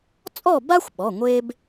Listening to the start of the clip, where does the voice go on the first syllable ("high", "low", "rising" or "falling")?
falling